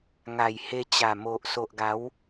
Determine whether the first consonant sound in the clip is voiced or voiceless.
voiced